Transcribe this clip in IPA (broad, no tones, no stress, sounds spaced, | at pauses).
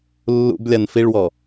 lː ṵ b lʲ a n f i ɭ w ɔ